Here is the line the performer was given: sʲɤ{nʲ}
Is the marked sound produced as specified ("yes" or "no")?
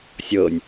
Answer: yes